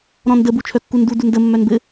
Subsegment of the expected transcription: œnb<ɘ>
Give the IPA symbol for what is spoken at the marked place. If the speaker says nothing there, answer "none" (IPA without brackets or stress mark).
ɘ